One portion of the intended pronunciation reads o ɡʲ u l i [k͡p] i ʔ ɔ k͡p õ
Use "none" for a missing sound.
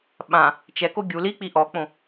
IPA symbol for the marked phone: k͡p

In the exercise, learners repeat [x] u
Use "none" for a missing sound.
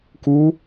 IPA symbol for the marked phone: k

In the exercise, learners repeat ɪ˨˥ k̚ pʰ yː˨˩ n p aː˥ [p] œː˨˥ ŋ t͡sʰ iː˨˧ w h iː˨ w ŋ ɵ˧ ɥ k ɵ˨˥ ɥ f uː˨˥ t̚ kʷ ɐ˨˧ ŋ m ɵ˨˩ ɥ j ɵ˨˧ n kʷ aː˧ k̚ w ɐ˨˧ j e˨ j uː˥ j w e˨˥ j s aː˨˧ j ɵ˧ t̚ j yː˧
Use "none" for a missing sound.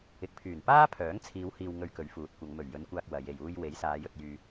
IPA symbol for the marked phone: pʰ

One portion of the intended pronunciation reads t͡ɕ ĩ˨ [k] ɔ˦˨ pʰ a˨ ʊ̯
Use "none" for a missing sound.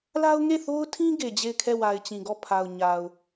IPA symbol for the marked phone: ɡ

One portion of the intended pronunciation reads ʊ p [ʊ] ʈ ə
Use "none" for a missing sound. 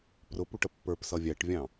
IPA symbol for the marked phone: u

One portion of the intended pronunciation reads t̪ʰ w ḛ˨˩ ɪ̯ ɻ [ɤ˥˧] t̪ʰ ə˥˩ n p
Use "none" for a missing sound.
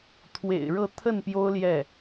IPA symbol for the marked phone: ɤ˥˧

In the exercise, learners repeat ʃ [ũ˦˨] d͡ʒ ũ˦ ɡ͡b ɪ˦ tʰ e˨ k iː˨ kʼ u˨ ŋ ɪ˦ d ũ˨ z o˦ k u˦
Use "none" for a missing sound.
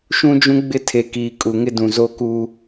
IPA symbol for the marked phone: ũ˦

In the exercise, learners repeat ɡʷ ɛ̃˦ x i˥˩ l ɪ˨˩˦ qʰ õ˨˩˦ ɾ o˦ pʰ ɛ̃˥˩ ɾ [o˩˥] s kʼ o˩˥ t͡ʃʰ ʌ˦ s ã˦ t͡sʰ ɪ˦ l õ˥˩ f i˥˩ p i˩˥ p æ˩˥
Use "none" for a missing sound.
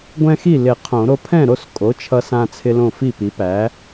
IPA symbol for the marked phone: o˥˩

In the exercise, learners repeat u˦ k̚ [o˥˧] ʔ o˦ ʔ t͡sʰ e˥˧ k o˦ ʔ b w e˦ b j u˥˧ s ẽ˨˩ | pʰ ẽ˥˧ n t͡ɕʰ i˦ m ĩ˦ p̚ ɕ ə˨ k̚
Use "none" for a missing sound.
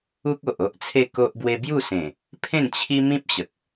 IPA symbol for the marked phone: o˨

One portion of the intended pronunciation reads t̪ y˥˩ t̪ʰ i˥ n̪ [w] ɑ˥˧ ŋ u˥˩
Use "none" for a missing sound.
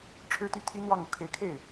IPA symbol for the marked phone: w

